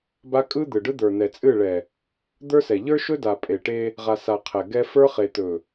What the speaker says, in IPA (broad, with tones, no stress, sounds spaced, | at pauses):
b a˦ kʼ ɯ˦ d̪ ɯ˨ ɖ ɯ˦ d̪ ə˞˨ n̪ ɛ˨ t͡sʼ ɨ˦˨ ɭ ɛ˨ | d̪ ə˞˦ s ɛ˨ ʎ ə˞˦ ʃ ɵ˦ d a˨ pʼ e˨ ʈ e˦ | ʁ a˨ s a˨ qʰ ɛ˨ ɡ ɛ˦ f ə˞˦ χ e˨ t̪ ɵ˨